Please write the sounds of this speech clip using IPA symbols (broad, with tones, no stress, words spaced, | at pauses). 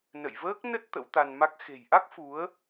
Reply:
nə̰˧˨jvəː˦˥k̚nə˦˥t̚ t̪ə̰˧˥wt̪a˧nma˦˥k̚ xe̤˨˩jʔa˦˥k̚ fu˨˦ə̯